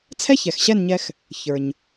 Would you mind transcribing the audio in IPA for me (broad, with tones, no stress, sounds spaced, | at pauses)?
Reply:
t͡sʰ ɛ˥ ç ɛ˩ x ɕ ɛ˥˩ n ɲ ɛ˧ x | ç ə˞˩ ɲ